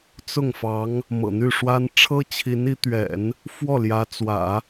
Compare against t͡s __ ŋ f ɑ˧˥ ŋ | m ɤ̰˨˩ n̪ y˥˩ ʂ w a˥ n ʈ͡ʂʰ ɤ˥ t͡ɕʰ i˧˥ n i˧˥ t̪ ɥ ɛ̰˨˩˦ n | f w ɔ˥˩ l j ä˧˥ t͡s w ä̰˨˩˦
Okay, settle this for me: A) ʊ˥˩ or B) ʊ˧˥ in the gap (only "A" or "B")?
A